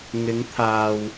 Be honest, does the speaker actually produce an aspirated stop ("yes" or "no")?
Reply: yes